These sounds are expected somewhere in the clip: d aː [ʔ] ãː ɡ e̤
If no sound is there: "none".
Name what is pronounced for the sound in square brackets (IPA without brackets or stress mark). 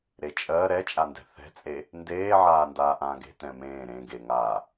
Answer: ʔ